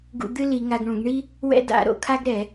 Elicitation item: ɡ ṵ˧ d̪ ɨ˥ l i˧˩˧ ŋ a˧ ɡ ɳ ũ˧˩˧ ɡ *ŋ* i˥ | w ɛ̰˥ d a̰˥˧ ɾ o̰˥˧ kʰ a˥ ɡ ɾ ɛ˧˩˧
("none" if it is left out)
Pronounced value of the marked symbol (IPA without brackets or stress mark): ɳ